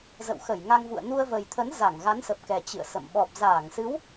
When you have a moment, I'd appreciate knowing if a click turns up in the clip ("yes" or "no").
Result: no